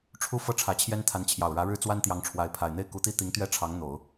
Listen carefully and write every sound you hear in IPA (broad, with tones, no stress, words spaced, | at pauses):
ʈ͡ʂʰu˥fɤ˥˩ ʈ͡ʂʰä˧˥t͡ɕʰjɛ˥nt̪ʰa˧˥nt͡ɕʰjɑ˨˩ʊ̯ ɻä˧˥ɻɻ̩˥t͡swa˥nt̪jɑ˧˥ŋ ʈ͡ʂʰwa˧˥ɪ̯ pʰa˨˩ɪ̯n̪e˥˩ɪ̯ ku˧˥t̪i˥t̪i˧˥ŋt̪ɥɛ˥ ʈ͡ʂʰɑ˧˥ŋn̪o˨˩˦ʊ̯